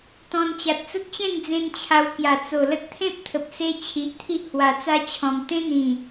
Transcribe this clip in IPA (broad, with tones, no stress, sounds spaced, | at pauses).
t̪ ɔ̃˧ n t͡ɕ a˨ t̚ t͡s ə˦ t̚ t͡ɕ ẽ˥˧ n d͡z ẽ˦ n t͡ɕʰ a˧ w k j a˨˩ t͡s o˨˩ l ə˦ t̚ t̪ʰ ẽ˦ p̚ t̪ʰ ə˨ p̚ s e˧ t͡ɕʰ i˨ ʔ t̪ʰ i˦ ʔ h w a˨˩ t͡s a˦ t͡ɕʰ ɔ̃˨˩ m t̪ ẽ˦ n̪ ĩ˨˩